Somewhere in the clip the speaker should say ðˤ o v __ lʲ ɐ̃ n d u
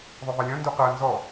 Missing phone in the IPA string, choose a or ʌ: a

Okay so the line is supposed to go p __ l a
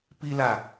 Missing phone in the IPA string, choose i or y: i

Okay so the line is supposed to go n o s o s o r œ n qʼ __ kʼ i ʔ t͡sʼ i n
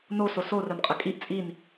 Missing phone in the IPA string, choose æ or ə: ə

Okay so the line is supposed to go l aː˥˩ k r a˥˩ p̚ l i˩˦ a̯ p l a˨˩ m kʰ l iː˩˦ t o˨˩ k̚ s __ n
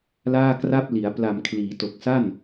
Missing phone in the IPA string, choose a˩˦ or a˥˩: a˥˩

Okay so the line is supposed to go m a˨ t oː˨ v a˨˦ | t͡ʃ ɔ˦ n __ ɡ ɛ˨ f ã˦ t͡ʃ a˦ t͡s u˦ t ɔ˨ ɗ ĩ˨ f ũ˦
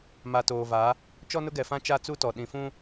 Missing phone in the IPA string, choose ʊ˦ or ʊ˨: ʊ˦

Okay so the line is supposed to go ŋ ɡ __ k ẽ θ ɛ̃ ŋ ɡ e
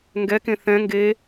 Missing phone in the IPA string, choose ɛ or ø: ɛ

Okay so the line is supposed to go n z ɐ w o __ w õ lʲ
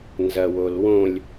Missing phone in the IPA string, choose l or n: l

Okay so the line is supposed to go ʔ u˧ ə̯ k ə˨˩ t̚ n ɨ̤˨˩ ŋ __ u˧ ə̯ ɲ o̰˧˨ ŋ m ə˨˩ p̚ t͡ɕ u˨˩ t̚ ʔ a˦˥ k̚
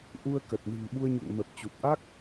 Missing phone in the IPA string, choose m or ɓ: ɓ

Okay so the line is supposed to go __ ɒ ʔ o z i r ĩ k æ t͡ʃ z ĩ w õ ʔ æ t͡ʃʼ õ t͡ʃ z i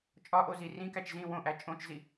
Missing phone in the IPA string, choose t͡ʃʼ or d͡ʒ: t͡ʃʼ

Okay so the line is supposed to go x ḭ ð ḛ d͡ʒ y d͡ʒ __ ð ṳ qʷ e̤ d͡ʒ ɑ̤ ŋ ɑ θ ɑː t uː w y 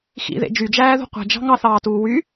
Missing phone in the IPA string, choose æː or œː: æː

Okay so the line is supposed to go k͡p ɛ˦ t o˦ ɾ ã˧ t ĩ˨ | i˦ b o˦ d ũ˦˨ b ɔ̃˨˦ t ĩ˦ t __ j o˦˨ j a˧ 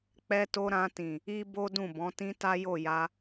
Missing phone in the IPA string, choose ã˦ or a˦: a˦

